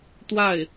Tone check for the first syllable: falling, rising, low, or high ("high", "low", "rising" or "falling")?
falling